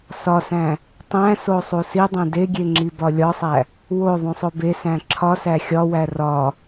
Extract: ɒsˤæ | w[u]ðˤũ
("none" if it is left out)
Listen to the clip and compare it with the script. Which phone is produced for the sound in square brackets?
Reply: o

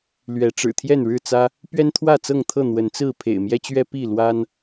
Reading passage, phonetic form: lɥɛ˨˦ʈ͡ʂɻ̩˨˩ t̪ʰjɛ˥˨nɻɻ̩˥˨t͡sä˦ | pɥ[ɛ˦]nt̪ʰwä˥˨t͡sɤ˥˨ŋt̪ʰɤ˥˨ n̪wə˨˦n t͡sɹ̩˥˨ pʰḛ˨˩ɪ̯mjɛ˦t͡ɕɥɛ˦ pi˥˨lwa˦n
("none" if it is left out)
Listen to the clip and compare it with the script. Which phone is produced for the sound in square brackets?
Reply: ɛ˦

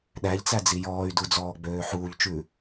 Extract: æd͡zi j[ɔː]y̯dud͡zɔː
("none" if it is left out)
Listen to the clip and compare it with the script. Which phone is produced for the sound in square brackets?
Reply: ɔː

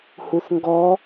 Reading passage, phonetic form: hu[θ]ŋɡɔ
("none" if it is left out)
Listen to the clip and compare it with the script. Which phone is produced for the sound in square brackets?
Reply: θ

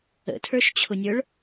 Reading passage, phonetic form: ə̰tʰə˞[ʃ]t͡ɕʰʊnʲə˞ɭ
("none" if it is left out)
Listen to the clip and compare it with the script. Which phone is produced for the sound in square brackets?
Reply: ʃ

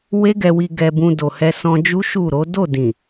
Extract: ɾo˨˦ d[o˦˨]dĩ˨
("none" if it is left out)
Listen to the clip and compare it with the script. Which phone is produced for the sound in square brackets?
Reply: o˦˨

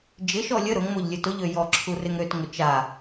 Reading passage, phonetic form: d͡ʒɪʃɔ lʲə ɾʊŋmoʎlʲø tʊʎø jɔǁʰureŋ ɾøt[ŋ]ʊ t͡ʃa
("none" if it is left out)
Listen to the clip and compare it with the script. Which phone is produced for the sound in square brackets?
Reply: ŋ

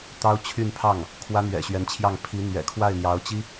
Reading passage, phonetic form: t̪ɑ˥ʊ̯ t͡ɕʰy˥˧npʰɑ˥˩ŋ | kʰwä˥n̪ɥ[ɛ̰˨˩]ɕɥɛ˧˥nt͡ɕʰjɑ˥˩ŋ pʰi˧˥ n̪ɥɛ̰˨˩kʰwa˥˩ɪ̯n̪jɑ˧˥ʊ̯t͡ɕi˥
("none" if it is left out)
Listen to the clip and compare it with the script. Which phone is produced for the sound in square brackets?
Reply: ɛ̰˨˩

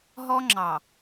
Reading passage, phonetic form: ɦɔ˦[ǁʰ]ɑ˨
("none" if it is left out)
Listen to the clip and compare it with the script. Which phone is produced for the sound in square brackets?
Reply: ŋ͡ǁ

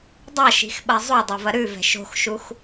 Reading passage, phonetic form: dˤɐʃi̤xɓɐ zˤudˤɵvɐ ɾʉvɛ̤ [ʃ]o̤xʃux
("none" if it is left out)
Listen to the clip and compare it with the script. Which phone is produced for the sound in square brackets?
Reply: ʃ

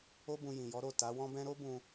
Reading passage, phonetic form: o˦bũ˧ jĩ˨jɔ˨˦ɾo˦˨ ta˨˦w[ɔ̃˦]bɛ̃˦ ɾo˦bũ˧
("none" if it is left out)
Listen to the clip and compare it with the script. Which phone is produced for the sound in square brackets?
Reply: ɔ̃˦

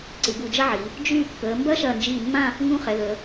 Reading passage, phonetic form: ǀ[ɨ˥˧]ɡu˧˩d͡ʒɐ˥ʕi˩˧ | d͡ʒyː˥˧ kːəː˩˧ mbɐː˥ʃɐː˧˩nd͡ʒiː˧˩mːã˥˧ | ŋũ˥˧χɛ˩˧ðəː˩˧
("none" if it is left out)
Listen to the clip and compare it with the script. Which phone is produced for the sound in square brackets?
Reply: ɨ˩˧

